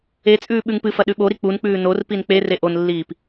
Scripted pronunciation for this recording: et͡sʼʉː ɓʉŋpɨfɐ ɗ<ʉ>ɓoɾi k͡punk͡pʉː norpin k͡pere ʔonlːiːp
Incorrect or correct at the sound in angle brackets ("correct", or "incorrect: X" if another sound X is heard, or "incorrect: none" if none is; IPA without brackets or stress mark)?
correct